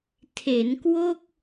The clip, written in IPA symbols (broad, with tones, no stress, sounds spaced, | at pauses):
tʰ e˩˦ n k w o˥˩ k̚